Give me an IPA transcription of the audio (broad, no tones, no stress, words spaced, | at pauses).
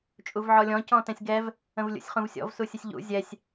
t͡ʃʼuvʕɔlʲɔ̃ cɔ̃tɛ̃sʲɡɛv | ə̃vlʲṵsʲχũvsʲɔ̰v susʲəsʲʎṵ zʲɛsʲ